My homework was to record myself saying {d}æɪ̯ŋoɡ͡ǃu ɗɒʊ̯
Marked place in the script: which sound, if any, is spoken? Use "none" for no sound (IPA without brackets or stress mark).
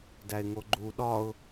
d